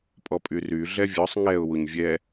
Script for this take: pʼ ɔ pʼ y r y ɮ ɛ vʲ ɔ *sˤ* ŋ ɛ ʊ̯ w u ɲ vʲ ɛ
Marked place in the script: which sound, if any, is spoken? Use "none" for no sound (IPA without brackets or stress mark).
sˤ